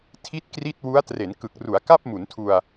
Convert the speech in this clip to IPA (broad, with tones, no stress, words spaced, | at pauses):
tʰi˥˩t̚kri˥˩t̚ wu˦˥a̯ tre˩˦nkɯ˨˩k̚ ru˩˦a̯ka˥˩p̚mu˩˦ntʰu˧a̯